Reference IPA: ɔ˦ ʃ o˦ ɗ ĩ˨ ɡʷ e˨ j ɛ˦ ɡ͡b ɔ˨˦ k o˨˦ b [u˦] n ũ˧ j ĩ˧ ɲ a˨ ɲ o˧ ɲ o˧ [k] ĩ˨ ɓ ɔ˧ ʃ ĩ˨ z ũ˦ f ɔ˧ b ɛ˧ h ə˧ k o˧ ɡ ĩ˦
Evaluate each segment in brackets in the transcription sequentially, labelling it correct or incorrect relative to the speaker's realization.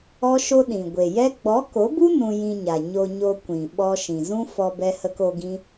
correct, incorrect: kʷ

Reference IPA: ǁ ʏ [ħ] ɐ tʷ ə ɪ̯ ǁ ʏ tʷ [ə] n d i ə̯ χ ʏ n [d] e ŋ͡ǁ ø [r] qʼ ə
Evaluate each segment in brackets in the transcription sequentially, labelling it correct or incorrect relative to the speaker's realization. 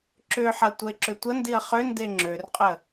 correct, correct, correct, correct

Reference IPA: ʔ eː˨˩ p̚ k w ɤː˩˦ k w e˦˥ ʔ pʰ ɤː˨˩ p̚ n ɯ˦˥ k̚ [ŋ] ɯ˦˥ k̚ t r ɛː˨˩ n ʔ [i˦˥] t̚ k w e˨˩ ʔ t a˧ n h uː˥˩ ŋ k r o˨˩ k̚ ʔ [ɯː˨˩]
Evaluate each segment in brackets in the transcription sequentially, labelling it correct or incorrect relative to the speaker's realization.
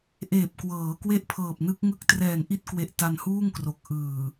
correct, correct, correct

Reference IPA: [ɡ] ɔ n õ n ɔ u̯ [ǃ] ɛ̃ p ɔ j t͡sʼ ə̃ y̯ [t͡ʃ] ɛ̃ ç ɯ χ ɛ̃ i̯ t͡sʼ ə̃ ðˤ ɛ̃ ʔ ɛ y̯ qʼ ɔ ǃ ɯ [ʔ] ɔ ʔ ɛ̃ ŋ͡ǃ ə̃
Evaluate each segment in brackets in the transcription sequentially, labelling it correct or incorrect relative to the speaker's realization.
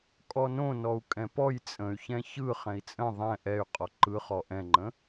incorrect: kʼ, incorrect: kʼ, incorrect: ç, incorrect: χ

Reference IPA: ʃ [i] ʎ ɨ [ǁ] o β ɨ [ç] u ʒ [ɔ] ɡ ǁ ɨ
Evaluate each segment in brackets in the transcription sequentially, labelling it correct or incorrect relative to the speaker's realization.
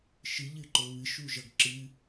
incorrect: ɨ, incorrect: ǃ, incorrect: ʃ, incorrect: ʌ

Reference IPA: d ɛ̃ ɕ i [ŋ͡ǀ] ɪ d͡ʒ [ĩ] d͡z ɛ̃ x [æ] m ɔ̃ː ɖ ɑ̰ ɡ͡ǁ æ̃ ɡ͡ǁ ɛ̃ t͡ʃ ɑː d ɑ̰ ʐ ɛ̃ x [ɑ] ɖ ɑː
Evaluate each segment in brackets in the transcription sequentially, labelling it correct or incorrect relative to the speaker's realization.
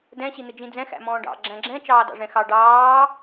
incorrect: n̪, correct, incorrect: æ̰, correct

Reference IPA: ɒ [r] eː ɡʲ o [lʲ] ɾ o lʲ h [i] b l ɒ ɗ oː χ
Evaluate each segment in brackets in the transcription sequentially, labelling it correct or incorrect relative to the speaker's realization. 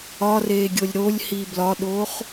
correct, correct, correct

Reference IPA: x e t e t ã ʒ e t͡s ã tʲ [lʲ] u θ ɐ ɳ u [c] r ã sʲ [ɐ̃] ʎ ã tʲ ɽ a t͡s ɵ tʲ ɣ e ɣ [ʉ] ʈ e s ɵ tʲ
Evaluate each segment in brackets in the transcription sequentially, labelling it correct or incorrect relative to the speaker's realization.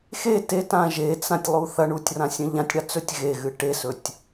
incorrect: lˠ, incorrect: tʲ, correct, incorrect: ɨ

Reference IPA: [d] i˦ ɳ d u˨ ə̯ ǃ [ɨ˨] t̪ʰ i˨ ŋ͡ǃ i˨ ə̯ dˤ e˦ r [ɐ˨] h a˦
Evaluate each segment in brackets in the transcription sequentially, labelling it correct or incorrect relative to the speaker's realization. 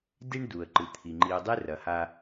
correct, correct, correct

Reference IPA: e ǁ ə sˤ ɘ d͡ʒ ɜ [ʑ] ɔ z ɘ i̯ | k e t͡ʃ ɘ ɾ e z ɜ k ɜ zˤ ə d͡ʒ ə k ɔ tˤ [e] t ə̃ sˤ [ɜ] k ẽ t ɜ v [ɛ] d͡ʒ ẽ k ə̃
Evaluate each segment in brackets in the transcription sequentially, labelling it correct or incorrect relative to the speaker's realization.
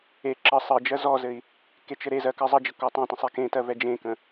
incorrect: z, incorrect: ẽ, incorrect: ɛ, correct

